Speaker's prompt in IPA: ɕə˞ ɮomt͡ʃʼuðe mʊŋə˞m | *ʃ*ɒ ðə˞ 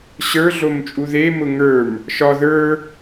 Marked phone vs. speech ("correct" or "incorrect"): correct